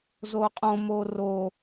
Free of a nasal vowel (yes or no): no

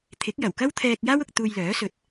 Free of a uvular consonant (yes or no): yes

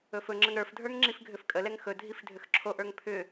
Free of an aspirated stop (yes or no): no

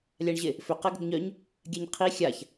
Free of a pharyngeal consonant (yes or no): yes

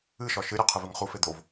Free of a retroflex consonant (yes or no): yes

